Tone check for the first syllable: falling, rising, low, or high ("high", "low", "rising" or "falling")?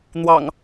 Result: low